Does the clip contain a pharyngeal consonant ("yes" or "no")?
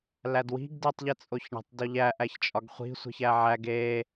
yes